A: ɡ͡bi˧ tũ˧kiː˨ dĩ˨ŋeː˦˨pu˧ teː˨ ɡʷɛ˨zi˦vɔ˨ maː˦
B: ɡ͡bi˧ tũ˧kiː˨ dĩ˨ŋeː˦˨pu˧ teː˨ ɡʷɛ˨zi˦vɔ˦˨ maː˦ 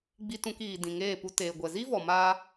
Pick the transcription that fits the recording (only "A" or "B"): A